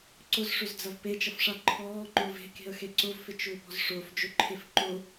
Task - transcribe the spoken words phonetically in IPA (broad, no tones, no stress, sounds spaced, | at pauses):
ǀ ʊ z ʂ ʏ z d͡z ɐ v p e t͡ʃ ɐ f ʂ a ǃʰ ɔː ŋ͡ǃ ʊː v e̤ k e̤ ə̯ x e ǀ ʊ v f ɪ t͡ʃ ʏː p ɔ̤ z ʂ ʊː f d͡ʒ ʏ ǃʰ e f ǃ ʊ